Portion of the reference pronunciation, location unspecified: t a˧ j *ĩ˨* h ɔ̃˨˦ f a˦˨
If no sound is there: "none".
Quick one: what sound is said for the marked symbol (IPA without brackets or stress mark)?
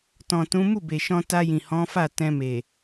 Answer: ĩ˨